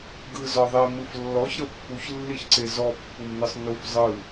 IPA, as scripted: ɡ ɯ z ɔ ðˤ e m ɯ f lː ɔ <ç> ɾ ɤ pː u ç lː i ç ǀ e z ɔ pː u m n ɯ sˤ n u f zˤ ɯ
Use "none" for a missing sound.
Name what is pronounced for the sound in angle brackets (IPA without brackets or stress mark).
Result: ç